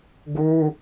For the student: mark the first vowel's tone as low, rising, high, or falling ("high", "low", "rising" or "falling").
high